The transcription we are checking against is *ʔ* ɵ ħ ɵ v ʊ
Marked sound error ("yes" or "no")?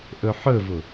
no